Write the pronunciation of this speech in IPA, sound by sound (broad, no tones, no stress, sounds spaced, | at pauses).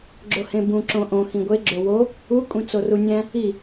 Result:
ɡ͡ǁ o h ẽ b ũ ǁ õ ʔ õ x ĩ ɡʷ e ɡ͡ǁ o w o | u kʷʼ ẽ t͡s o r u nʲ æ̃ | i